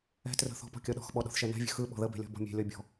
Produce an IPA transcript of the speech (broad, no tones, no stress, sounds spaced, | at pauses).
ɛ̤ t r ə̤ θ ɔ̤ p ɔ̤ kʲ ɔ ɗ ɔ̤ x ɓ ɔ ɗ ɔ̤ θ ʃ ɛ n ɛ̤ vʲ ə̤ x ɯ ɓ ɔ̤ ð ə b ɛ̤ lʲ ɔ̤ b ɔ̤ mʲ ɛ̤ lʲ ɔ bʲ ɔ̤